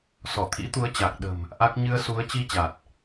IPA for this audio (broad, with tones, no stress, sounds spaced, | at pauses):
s ɔ˧˩ t̪ʰ ḭ˧˥ t̪ u˨˦ ə̯ t͡ɕ a˨˩ k̚ ɗ ə̤˨˩ m | ʔ a˦˥ k̚ ɲ ɨ˧ ə̯ s u˨˦ ə̯ t͡ɕ i˧ t͡ɕ a˨˩ t̚